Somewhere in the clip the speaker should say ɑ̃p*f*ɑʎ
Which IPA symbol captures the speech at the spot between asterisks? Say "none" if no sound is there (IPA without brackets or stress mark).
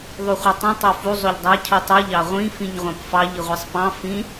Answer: f